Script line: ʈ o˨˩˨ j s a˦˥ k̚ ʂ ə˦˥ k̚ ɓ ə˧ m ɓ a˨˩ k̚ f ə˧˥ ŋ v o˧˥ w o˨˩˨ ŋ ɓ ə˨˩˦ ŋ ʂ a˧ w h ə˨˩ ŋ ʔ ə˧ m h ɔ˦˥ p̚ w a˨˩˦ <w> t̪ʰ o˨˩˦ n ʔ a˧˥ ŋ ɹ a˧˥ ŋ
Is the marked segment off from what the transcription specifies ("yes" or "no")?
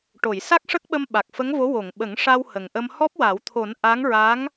no